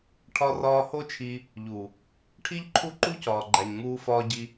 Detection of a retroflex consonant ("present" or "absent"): present